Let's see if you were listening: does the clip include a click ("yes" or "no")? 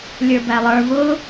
no